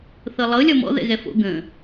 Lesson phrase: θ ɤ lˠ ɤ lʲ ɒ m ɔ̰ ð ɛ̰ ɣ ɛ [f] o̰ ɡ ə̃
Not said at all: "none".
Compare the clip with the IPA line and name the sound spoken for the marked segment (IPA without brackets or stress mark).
f